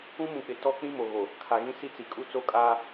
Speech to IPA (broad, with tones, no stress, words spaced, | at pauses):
ũ˦mũ˨k͡pɪ˨ tɔ˦ k͡pĩ˦mo˨ɣo˨ | kʰa˨ɣĩ˦si˦t͡si˨ kʼu˦t͡so˦kʼaː˦